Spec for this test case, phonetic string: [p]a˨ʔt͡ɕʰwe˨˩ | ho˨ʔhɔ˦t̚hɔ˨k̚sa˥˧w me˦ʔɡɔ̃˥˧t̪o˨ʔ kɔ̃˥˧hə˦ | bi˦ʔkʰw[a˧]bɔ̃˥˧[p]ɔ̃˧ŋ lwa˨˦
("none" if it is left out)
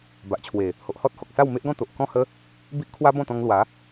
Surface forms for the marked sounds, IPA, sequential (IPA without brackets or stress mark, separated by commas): b, a˦, t̪